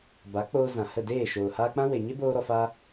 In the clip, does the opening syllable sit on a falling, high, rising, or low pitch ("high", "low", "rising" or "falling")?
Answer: rising